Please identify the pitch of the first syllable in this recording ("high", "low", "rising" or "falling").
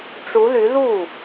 rising